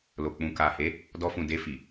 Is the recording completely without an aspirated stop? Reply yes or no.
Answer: yes